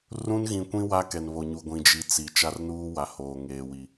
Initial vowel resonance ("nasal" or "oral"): nasal